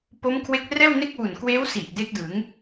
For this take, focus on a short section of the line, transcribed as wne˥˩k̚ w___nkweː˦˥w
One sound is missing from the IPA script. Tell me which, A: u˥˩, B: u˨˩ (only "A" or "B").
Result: B